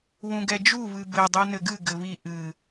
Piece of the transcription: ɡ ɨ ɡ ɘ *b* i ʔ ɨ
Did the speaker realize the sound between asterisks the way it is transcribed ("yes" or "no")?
no